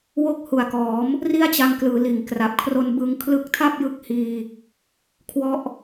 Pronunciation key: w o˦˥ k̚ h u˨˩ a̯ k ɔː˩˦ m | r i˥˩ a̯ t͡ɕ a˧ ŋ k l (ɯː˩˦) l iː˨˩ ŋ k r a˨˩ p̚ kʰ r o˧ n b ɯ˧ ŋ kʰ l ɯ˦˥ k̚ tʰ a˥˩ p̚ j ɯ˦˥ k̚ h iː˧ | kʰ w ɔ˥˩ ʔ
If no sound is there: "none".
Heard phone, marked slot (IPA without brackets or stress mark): ɯː˩˦